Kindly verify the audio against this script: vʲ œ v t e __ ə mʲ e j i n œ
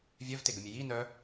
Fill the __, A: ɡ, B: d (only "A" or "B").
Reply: A